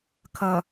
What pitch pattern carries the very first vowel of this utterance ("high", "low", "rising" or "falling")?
low